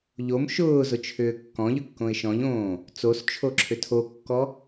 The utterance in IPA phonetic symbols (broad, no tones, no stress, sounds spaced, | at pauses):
ʎ o m ʃ ʊː z ʊ t͡ʃʰ ʏː kː ɔ̃ ʎ ʏ kː õ ɪ̯ ʃ ɔ̃ ʎ õː | t͡s o s t͡ʃʰ o ǁʰ ʏ tʰ o kː ɔ